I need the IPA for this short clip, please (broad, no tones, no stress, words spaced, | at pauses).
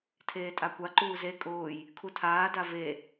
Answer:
tʰeːtʼakʷa ǃuːze kʼʊːj | kʰutʰaː dave